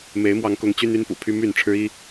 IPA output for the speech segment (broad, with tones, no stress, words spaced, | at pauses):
me˨˦ɪ̯mwɑ˨˦ŋkʊ˨˦ŋ t͡ɕy˦ny˦npṵ˨˩pʰy˦ my˥˨n ʈ͡ʂʰɻ̩˦i˦